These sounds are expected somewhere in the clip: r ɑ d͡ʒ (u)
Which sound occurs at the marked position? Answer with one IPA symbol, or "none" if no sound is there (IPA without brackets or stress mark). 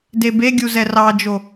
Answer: o